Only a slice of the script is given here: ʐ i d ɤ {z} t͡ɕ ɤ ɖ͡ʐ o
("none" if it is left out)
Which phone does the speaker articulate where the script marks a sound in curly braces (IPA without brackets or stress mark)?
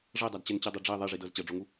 z